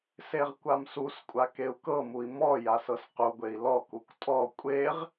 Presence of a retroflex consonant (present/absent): absent